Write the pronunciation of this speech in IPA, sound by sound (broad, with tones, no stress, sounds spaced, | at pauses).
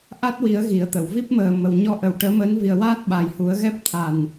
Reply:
ʔ a˦˥ t̚ w i˨˩˦ ə̯ ɣ i˨˩˦ ə̯ t̪ ə˨˩˨ w v i˦˥ p̚ m əː˨˩ m ə˨˩˨ w ɲ ɔ˧ ʔ ə˨˩ w ʈ əː˧˥ m əː˧˥ n v i˨˩ ə̯ w aː˦˥ t̚ ɓ a˨˩ j h u˨˩˦ ə̯ ɣ ɛ˦˥ p̚ t̪ʰ a˨˩ n